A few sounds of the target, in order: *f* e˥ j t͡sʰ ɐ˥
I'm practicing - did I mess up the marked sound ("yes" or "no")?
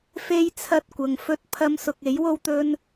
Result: no